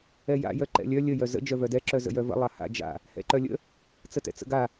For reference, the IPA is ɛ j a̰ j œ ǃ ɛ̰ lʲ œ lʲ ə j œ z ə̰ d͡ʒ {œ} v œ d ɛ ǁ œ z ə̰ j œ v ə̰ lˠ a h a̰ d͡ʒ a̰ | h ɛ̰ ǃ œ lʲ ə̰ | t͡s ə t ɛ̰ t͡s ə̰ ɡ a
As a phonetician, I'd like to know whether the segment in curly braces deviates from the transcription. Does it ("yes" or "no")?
no